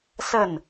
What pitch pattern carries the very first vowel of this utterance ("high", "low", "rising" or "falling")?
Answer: falling